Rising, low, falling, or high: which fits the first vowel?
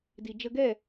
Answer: low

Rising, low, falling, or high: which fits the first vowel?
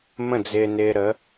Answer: falling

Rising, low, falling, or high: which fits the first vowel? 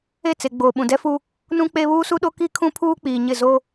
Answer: falling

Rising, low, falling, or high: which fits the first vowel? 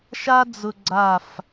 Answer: high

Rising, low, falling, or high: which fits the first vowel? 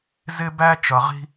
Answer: high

